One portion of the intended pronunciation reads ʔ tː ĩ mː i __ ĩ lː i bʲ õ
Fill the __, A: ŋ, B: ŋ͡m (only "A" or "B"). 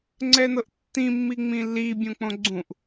B